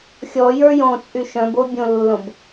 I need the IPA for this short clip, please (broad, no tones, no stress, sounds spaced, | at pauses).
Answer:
xʲ ɔ j ə˞ j õ t͡sʼ y ʃ œ̃ b o bʲ õ lː õ b